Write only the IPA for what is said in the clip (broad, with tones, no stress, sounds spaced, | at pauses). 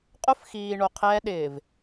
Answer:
qʼ ʊ˦ f x iː˨ ɳ o˨ qʰ ɛː˦ ɗ ɪː˨ v